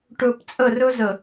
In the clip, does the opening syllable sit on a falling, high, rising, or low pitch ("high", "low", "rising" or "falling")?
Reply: low